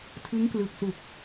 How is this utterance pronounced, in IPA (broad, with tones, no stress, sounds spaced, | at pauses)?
tʰ ɯ˦˥ ŋ k l ɯ˨˩ k̚ s u˨˩ k̚